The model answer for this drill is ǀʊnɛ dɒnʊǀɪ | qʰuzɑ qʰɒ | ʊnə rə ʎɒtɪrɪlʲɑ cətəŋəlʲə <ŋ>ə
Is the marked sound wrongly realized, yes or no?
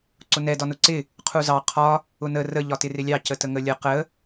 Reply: yes